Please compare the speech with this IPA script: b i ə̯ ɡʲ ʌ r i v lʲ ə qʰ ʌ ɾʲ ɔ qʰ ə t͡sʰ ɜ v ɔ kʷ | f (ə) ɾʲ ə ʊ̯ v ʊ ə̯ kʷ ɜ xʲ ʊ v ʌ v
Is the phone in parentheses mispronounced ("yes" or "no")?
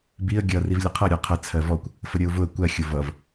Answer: no